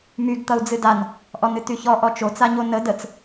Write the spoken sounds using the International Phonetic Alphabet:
m y ɡ t̪ ʌ u̯ d͡z ɨ d a n | ʔ ɔ n ɨ t y ç ɔ ʔ ɔ t͡ʃ o t͡s a ɲ o n ə d ə t͡s

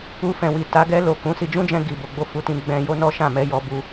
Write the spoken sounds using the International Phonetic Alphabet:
u˧ f ɛ̃˨ w i˨ t a˨˦ ɡ ɛ˧ l o˨ k ũ˨˦ s i˧ d͡ʒ ũ˦ d͡ʒ ɛ̃˧ ɡ i˨ b o˨ ɡ͡b o˧ f u˨ t ĩ˧ ɡ͡b ɛ̃˧ j o˦ n ɔ˦ ʃ ã˦˨ m ɛ˨˦ j ɔ˦ b u˦

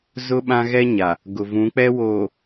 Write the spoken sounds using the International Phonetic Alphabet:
z ʊ˦ ɓ ã˦ ɣ ɛ˦ ɲ a˨ | ɡ ʊ˨ v ũ˨˦ k͡p ɛ˦ w oː˨

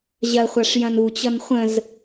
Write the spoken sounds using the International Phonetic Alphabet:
ʑ ɐ χʷ a ʂ j ɐ̃ n u t͡ɕ ʌ n χʷ ə̃ z

